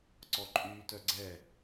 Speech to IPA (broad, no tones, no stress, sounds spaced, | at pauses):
ǀ ɔ ǃʼ yː t œ ɡ͡ǀ ɛ